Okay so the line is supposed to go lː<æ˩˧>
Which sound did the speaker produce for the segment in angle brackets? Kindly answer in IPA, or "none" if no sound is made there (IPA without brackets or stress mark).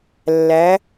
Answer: æ˩˧